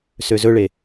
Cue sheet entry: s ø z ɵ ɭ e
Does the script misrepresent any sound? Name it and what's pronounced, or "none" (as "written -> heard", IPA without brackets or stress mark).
none